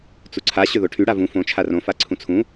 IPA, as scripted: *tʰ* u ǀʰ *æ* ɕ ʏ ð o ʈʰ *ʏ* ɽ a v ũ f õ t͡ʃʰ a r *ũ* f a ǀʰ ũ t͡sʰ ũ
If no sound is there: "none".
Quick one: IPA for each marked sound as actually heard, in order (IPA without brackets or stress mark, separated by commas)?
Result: t͡s, a, y, õ